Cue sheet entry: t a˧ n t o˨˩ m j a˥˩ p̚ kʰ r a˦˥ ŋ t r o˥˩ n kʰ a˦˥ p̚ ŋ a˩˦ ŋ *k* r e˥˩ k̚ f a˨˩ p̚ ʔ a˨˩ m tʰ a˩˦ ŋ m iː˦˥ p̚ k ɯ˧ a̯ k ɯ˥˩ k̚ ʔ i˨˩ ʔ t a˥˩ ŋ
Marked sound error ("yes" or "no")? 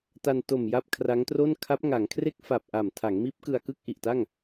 yes